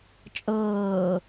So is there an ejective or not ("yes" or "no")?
yes